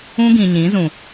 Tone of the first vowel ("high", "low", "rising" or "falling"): high